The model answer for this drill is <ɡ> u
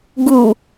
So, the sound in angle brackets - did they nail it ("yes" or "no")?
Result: yes